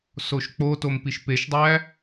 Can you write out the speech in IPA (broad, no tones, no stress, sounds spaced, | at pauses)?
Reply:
s o ʃ k͡p o t o m p i ʃ p e ʃ dˤ æ